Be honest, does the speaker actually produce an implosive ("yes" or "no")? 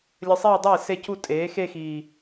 no